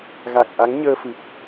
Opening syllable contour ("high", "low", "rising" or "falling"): low